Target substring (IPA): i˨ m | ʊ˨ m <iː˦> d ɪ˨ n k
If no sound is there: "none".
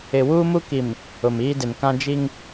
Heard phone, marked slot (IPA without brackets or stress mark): iː˦